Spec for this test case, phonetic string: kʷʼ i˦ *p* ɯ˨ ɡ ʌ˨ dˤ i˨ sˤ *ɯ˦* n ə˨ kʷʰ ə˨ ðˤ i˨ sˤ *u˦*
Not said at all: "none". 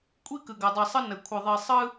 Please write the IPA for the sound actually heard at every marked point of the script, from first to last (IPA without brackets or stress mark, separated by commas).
k, ɯ˦, ɯ˦